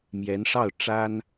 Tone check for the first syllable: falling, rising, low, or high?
rising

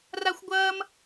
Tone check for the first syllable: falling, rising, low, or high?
high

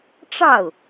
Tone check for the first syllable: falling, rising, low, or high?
falling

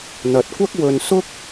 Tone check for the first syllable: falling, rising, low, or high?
low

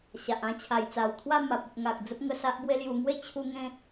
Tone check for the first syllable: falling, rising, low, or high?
low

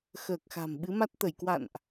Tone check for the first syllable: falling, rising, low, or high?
low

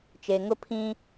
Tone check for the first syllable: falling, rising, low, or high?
low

